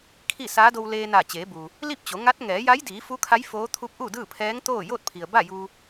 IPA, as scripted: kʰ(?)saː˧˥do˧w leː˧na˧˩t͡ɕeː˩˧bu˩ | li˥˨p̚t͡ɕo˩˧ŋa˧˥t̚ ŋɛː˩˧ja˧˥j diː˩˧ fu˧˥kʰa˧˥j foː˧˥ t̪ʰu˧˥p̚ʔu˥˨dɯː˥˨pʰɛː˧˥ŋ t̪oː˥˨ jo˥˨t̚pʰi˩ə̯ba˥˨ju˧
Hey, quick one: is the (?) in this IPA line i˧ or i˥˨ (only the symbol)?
i˥˨